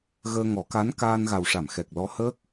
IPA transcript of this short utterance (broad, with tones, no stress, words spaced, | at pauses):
ɣəː˧ŋɔ˨˩˦ka˧˥n kaː˧nɣa˨˩wʂa˨˩˨m xɛ˨˩k̚lɔ˧˥həː˦˥k̚